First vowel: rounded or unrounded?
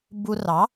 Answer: rounded